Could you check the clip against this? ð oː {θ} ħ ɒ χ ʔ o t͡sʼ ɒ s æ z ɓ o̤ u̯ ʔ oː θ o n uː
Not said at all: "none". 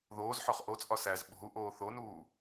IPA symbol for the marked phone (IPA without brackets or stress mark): z